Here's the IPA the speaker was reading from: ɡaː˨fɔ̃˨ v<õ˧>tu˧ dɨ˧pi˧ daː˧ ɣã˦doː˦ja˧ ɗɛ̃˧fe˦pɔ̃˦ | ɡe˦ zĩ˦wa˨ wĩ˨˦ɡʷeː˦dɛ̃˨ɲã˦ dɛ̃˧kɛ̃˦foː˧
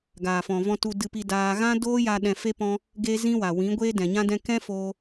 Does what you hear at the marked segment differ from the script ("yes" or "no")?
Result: yes